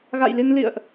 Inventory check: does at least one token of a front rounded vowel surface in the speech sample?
no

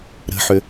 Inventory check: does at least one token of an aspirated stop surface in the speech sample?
no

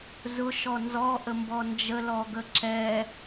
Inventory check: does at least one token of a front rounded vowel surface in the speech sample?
no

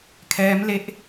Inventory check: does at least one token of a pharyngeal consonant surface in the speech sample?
no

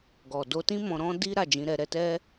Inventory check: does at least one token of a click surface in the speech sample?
no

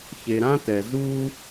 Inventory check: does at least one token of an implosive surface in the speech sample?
no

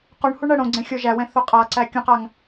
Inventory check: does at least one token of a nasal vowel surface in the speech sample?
yes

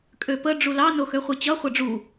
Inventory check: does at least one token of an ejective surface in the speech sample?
yes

